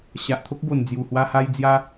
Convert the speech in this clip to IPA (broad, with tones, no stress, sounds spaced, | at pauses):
ɕ a˨ ʔ t̪ʰ o˦ k̚ b o˨˩ n d͡z j u˨˩ h w a˧ h a˧ j d͡z j a˧